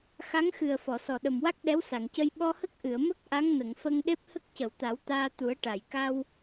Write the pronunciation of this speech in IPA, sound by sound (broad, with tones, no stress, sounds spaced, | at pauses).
x a˧˥ ŋ x ɨ˨˩ ə̯ f ɔ˨˩˨ s ɔ˨˩ ɗ ə˨˩ m w a˦˥ k̚ ɗ ɛ˧˥ w s a˨˩˨ ŋ c ə˧ j ɓ ɔ˧ h ə˦˥ k̚ ʔ ɨ˨˩˨ ə̯ m ə˦˥ k̚ ʔ a˧˥ ŋ n ə˨˩˨ ŋ f ə˧ ŋ ɗ e˦˥ p̚ h ə˦˥ k̚ c ə˨˩˨ w t̪ a˨˩˦ w t̪ aː˧ t̪ u˨˩˦ ə̯ ʈ a˨˩˨ j k a˧ w